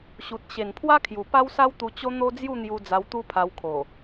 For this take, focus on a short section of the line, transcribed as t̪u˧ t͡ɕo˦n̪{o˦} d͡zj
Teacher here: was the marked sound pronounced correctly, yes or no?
yes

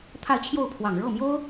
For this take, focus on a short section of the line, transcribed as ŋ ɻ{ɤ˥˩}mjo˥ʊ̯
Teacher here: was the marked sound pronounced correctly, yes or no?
yes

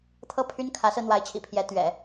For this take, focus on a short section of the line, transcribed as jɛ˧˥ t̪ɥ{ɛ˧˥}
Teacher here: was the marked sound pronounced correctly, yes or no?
no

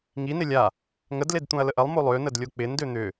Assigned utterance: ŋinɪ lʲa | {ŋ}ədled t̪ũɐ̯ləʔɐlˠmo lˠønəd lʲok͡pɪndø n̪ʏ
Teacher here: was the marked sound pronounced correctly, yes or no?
yes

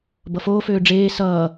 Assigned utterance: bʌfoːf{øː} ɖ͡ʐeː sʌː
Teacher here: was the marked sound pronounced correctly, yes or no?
yes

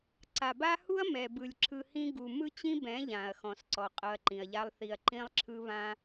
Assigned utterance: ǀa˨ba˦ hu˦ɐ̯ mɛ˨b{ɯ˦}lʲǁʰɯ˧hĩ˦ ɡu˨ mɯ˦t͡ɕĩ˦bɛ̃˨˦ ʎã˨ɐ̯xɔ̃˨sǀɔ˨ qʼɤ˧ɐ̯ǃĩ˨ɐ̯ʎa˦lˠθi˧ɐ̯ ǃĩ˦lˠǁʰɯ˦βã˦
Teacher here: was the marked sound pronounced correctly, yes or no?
no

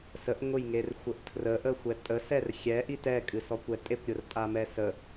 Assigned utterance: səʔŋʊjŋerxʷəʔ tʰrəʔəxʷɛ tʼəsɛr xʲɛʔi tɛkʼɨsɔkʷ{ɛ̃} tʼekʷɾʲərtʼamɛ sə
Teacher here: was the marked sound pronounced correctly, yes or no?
no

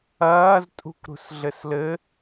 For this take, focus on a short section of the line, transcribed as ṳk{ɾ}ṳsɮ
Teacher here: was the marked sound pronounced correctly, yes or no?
yes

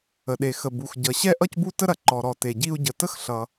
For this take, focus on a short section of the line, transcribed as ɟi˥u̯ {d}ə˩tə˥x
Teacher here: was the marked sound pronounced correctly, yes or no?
no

